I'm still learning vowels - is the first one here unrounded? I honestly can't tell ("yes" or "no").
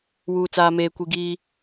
no